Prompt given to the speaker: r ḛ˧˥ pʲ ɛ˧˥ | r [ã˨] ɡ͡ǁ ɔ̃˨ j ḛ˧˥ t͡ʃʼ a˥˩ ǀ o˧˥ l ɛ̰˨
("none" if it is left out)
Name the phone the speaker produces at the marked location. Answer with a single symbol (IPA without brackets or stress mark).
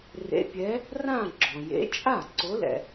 ã˥˧